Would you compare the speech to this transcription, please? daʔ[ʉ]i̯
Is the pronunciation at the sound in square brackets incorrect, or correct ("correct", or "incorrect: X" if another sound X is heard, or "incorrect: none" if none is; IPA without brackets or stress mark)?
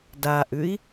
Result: correct